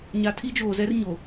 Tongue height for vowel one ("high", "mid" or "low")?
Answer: low